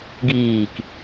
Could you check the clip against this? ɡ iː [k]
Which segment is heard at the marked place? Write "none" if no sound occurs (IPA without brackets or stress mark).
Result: k